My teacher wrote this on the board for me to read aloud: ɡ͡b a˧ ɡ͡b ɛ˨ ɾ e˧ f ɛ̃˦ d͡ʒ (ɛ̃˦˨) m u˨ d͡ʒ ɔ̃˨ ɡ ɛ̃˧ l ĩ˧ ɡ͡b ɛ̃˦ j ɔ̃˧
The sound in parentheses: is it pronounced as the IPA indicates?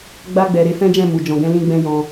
yes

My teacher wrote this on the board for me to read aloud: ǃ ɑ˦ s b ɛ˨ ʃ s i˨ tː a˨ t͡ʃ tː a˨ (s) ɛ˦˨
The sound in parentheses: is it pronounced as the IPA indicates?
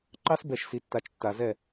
no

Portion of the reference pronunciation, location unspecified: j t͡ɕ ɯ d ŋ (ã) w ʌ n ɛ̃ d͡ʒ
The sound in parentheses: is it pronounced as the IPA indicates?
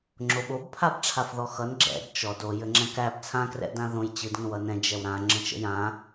no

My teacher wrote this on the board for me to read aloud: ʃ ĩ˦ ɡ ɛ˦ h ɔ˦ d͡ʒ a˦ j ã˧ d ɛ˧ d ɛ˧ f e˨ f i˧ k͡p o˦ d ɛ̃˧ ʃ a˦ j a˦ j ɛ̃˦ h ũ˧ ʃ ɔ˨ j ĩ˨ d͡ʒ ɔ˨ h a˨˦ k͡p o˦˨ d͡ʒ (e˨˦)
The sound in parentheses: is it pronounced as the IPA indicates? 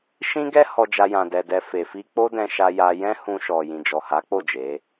yes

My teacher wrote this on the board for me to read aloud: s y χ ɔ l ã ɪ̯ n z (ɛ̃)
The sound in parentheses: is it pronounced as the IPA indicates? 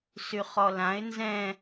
yes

